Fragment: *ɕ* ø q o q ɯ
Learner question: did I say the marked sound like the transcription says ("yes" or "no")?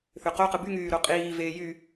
no